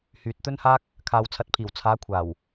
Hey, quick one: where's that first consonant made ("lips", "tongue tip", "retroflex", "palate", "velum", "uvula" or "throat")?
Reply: throat